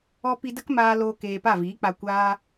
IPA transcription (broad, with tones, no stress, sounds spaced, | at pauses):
ɔ˦ p i˧ d ə˦ k m aː˧ l oː˧ k eː˧ p a˦˨ v iː˨˦ k͡p a˧ kʷ aː˦